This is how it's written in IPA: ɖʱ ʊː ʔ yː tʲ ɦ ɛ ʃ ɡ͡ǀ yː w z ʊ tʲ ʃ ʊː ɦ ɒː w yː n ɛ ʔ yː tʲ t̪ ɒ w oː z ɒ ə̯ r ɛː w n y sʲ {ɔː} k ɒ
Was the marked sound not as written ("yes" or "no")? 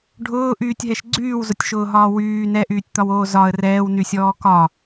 no